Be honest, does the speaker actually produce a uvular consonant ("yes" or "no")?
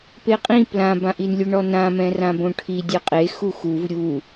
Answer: yes